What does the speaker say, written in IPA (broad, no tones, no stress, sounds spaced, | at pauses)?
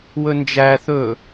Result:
w ɵ n d͡ʒ æ θ ɵ